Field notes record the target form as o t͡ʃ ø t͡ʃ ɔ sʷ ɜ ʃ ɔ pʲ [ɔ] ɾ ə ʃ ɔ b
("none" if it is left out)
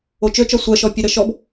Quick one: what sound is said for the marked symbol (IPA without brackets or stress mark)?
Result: ə